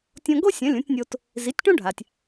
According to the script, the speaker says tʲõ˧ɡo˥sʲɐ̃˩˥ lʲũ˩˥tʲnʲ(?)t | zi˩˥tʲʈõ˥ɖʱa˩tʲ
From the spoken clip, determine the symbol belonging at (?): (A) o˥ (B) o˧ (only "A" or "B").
B